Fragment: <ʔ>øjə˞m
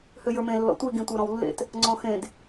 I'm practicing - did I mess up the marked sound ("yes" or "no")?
yes